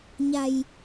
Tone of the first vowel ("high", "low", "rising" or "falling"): low